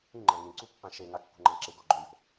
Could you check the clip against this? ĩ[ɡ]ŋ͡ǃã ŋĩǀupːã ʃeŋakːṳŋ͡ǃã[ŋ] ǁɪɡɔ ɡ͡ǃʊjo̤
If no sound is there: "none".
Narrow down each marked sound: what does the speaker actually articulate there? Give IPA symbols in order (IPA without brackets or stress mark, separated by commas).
none, none